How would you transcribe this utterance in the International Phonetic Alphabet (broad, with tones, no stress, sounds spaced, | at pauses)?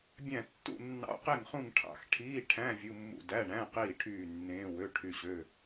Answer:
bʲ æ̃˦˨ tː ṵ˦˨ nː ɑ̰˧˥˧ q e˦˨ ŋ χ ũ˦˨ ŋ ʈʰ ɑ̰˦˨ x ʈʰ iː˧˥˧ ʈʰ æ̃˧˥˧ vʲ u˧˥˧ mː ṵ˦˨ d æ˧˥˧ ɳ æ̃˧˥˧ q iː˦˨ ʈʰ yː˦˨ nː ẽː˧˥˧ w ø˧˥˧ ʈʰ y˦˨ ɕ ø˧˥˧